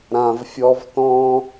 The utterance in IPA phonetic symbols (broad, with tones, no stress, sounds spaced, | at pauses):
ɾ ã˨ v fʲ ɔ˧ v t ɔ̃˦